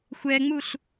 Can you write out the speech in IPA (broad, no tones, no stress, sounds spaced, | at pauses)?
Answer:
xʷ ɛ ŋ͡m u ɬ